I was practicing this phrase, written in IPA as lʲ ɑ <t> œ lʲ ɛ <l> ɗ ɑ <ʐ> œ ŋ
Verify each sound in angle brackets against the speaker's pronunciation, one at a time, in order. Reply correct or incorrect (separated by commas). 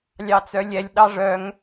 incorrect, incorrect, correct